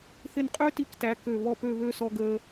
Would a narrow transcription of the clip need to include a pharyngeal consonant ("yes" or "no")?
no